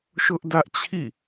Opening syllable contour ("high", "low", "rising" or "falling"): high